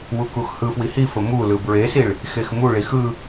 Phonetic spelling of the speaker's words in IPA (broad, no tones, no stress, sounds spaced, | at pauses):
w u k u x h ɯ f w i h i f ə m u l ɯ b ɹ e s i ɭ | x e x m u ɭ i x ɯ